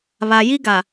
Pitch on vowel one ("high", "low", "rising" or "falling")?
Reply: low